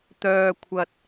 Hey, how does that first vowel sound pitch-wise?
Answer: low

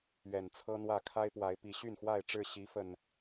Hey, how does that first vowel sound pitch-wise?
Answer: low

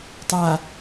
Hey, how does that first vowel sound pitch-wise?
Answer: low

